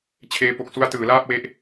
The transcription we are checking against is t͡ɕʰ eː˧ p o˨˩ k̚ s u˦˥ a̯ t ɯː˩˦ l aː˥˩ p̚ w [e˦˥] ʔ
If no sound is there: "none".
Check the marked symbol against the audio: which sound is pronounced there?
e˦˥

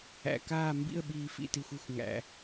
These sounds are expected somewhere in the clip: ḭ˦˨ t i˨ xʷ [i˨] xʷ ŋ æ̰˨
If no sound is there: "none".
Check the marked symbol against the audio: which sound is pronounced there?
i˨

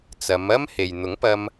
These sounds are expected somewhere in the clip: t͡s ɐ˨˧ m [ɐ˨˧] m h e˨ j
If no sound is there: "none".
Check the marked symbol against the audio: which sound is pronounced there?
ɐ˥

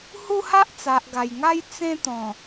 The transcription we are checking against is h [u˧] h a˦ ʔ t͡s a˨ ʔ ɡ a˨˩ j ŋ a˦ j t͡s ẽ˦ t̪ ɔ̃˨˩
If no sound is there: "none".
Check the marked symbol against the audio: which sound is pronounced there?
u˦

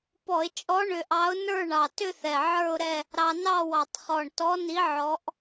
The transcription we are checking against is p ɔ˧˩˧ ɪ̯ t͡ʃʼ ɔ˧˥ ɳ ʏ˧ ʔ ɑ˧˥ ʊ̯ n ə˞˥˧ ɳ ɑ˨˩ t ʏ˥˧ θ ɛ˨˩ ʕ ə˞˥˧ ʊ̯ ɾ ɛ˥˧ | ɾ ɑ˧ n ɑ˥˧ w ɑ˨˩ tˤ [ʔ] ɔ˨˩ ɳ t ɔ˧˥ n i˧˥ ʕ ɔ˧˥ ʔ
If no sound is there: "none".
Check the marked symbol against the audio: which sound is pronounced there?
χ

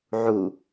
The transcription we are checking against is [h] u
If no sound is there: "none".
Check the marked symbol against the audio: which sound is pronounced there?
ʕ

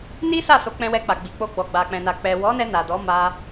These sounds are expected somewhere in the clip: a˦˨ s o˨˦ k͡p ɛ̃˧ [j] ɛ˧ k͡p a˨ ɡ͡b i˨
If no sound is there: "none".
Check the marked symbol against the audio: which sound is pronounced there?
w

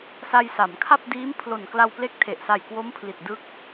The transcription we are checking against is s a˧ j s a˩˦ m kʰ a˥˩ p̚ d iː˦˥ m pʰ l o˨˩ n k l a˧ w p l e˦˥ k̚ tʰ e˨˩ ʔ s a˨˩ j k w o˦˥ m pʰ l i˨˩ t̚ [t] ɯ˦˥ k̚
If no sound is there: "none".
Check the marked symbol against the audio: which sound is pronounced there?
d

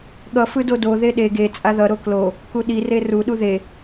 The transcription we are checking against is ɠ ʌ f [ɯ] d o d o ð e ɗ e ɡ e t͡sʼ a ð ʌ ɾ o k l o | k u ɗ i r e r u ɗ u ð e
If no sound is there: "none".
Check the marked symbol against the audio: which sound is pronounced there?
ɯ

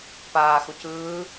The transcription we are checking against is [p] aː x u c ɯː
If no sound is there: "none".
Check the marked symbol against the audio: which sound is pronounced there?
p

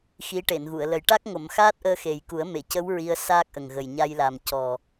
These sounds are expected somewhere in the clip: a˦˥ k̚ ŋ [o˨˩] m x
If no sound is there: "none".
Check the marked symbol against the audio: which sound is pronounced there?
o˨˩˨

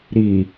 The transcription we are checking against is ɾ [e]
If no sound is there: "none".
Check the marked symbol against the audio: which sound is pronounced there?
i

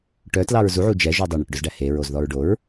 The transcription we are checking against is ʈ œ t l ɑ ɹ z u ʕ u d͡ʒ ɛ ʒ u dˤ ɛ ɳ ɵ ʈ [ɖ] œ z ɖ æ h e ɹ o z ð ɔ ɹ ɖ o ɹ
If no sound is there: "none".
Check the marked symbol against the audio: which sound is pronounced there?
ɖ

